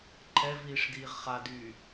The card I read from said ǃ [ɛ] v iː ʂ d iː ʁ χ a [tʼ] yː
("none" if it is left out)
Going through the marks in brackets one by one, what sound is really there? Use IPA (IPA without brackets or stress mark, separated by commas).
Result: ɛ, d